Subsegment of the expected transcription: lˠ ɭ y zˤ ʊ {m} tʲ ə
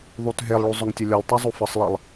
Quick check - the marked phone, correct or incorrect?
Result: incorrect